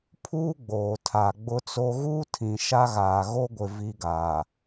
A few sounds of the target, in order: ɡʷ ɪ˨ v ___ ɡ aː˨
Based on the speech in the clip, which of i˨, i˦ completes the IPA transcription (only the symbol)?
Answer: i˦